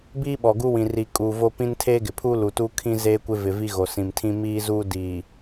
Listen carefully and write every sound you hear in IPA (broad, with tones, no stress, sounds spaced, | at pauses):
b iː˦ ɓ ɔ˨ ɡ u˦ w ĩ˨ r i˨ kʼ uː˨ v o˦ p ĩ˦ n tʰ eː˦ ɡ ɪ˨ pʰ uː˦ l u˨ t uː˦ kʰ ĩ˦ z eː˦ kʷ ɪ˦ v ɪ˨ v i˦ ɣ o˨ s ĩ˨ m tʰ ĩ˦ m iː˦ z u˦ d iː˨